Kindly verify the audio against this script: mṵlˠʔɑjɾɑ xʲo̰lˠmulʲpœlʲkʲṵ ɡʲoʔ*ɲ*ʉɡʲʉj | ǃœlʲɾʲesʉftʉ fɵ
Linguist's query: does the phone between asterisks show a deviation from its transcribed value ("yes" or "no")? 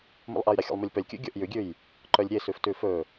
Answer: yes